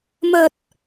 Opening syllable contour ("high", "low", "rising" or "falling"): low